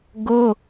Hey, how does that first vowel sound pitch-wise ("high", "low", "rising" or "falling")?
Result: high